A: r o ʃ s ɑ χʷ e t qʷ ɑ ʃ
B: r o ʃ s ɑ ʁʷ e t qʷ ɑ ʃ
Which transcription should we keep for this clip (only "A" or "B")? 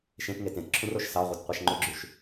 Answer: B